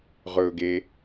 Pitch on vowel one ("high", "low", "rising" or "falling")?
low